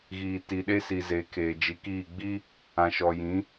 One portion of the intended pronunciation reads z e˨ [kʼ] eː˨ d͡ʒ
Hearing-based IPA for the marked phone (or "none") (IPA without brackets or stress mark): kʰ